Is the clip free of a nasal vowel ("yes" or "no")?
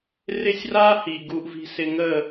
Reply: yes